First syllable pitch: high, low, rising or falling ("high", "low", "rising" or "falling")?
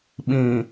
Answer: low